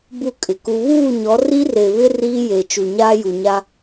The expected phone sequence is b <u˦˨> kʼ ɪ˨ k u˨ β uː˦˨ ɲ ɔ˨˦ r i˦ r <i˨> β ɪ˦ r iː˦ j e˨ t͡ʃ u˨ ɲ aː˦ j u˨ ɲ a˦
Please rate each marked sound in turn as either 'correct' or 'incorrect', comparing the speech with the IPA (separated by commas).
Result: correct, incorrect